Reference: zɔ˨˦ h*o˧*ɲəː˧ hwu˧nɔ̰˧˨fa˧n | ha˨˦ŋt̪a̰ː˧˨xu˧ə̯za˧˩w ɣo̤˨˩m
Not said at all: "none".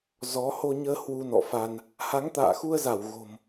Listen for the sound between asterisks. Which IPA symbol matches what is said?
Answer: o˧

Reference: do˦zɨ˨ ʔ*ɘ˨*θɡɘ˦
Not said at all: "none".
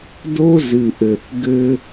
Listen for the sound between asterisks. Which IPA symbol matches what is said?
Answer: ɘ˨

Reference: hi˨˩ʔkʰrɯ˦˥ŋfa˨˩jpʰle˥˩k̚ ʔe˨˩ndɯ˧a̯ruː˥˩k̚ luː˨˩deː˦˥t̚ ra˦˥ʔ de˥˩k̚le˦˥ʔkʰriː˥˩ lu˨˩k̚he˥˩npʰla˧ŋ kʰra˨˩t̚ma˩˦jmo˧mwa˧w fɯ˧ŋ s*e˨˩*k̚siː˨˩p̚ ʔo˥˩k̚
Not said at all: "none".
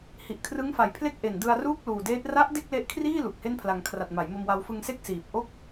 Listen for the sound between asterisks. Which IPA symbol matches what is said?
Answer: e˥˩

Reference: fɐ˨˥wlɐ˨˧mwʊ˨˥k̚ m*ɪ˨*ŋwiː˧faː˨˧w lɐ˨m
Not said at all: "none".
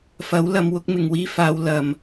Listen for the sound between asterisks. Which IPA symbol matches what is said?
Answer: ɪ˨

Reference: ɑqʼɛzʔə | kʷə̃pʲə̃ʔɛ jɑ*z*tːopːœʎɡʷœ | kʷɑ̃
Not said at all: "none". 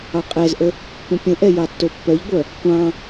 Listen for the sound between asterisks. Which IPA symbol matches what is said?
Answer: none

